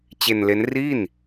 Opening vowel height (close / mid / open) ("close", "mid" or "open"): mid